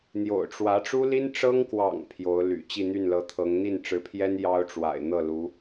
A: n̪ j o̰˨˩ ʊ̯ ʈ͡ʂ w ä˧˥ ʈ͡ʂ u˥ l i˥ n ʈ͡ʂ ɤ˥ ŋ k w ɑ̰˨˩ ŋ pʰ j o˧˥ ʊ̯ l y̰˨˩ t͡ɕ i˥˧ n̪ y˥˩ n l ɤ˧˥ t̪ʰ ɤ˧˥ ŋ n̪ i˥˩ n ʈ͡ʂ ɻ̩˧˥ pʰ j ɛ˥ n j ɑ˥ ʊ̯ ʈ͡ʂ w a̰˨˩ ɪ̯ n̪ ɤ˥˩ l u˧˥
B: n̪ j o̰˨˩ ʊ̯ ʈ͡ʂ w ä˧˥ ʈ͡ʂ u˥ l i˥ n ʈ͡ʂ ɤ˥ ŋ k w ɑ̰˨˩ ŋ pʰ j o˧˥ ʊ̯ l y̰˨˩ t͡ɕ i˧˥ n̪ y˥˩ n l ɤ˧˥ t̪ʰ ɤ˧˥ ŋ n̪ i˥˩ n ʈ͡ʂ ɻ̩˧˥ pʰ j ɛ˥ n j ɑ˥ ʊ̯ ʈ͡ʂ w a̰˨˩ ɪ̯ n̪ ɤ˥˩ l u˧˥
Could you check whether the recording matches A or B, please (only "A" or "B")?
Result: A